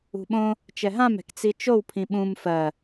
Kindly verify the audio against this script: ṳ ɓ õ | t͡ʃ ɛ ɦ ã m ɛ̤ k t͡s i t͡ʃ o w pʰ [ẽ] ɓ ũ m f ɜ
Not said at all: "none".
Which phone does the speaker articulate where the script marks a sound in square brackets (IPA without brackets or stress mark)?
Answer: ĩ